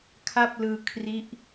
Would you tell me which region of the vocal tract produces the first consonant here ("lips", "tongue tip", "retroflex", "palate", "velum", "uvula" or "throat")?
velum